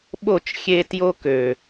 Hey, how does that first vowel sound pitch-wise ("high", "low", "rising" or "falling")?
falling